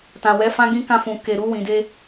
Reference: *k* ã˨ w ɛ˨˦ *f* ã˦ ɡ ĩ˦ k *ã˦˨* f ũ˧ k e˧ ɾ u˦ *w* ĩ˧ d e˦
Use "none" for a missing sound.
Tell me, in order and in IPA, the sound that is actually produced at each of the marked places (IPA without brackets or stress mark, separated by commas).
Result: t, f, ã˦˨, w